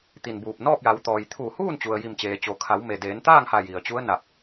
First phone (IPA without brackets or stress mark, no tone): t̪